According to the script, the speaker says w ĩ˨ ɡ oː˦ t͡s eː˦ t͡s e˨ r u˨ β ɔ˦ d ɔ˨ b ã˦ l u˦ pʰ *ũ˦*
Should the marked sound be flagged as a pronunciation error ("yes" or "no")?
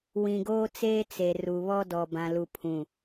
yes